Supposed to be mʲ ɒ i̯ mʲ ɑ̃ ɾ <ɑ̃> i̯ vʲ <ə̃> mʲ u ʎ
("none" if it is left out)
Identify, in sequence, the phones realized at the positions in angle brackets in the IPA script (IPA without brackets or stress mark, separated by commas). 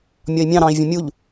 ɑ̃, ə̃